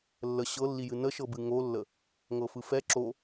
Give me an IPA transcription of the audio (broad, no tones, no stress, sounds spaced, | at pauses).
lː ə ɕ ɤ lː i j ɨ n ə ʃ ɤ b ɨ ŋ o lː ə | ŋ ɤ f ɯ f ɛ ǁ o